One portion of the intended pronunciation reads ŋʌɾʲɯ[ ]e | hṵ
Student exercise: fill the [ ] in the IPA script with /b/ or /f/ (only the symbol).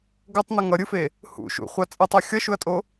f